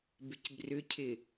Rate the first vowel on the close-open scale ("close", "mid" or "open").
close